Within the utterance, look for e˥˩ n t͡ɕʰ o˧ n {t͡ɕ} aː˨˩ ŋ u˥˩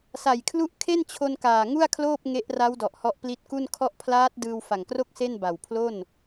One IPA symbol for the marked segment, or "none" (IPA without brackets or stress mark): k